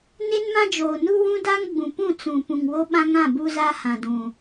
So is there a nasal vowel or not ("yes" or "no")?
yes